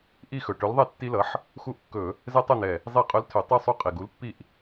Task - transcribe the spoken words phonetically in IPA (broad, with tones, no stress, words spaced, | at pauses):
ʔi˦˨xɵ˨˩ ʈɵ˨˥lðˤɛ˦˨tːi˦lʌ˨˥ħ | xu˦ʔkːɵ˧˩˧ | zɛ˦tˤɵ˦˨n̪ɛ˨˩ | zˤi˧˩˧qʼɵ˨˥l tʰɵ˧˩˧ tˤɵ˦˨ sˤu˦˨qʼi˨˩ɡu˨˥lpːi˦˨ʔ